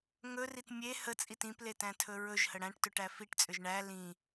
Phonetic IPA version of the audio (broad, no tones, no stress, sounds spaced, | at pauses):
ŋ ɵ r i t mʲ e h ə t͡sʼ i t ĩ p l e t æ̃ tʰ ɵ ɹ ɵ ʒ h ə ɽ æ̃ ʈ t ø ʈ æ f i ʈ t͡sʼ ʏ ʒ ɳ æ l ĩ